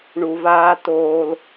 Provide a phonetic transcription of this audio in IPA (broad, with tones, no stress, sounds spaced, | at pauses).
ɳ u˨ v aː˧ t oː˧ l